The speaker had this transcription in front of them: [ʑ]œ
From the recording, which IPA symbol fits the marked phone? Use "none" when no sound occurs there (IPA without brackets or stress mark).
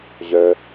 ʑ